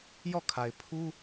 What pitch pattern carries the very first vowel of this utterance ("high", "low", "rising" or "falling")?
falling